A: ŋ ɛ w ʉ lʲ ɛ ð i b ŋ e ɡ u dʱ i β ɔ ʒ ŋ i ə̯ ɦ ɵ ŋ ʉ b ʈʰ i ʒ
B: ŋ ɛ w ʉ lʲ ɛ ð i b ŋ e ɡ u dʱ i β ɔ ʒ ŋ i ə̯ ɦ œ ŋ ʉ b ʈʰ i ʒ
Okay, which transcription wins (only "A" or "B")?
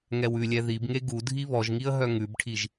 B